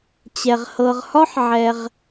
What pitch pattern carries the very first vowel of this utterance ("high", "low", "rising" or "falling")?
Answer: low